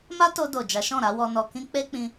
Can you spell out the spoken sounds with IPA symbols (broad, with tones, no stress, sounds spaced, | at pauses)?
m a˦ t o˧ d o˨ d͡ʒ a˨˦ ʃ ɔ̃˦˨ ɾ a˨˦ w ɔ˧ n ɔ˧ k ĩ˦ k͡p e˦ k͡p ĩ˧